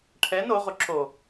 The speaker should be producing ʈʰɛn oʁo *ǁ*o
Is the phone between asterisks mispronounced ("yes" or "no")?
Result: no